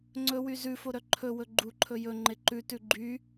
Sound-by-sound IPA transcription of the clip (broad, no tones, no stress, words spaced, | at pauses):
ŋ͡ǀɵwy zʉfoɾœ ǃʰɵwɵ ɡ͡ǃuǃʰɵ jɵŋ͡ǃe ǃʉtʉ ɡ͡ǃy